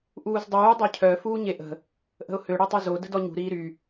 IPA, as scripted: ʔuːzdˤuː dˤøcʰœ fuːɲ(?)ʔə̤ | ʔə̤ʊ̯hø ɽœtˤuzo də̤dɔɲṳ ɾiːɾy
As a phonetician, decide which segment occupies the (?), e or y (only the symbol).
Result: e